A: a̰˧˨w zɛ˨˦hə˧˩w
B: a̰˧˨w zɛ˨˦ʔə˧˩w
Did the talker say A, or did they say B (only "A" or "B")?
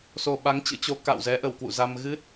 B